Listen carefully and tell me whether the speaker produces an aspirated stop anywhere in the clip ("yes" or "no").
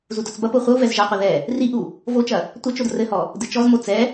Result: no